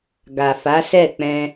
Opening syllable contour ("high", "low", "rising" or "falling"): low